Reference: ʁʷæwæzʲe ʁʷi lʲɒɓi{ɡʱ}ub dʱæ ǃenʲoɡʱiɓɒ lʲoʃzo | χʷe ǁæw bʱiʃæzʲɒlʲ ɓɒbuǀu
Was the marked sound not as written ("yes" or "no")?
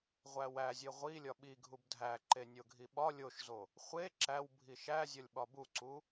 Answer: no